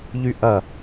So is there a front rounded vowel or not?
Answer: yes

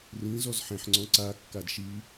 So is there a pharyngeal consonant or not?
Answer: yes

